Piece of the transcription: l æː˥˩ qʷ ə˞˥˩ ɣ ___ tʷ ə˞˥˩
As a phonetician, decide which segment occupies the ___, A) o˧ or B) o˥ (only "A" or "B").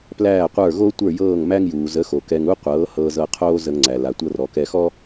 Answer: B